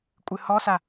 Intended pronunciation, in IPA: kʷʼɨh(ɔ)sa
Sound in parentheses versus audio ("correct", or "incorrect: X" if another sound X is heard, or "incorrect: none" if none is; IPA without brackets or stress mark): correct